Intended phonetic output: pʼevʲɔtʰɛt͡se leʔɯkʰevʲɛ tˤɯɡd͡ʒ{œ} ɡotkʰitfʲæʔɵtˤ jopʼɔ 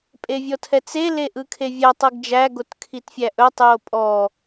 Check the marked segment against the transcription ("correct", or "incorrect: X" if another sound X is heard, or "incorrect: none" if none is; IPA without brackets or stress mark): incorrect: æ